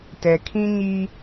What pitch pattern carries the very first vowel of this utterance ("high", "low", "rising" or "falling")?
low